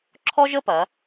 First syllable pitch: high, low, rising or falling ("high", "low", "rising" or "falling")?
high